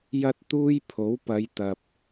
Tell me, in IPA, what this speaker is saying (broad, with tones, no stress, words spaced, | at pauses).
jɐ˥t̚t̪uː˥j pʰo˨˥wpɐ˨˧jt̪ɐ˨p̚